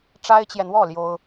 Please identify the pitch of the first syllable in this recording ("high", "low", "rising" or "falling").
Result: high